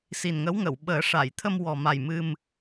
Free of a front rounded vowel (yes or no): yes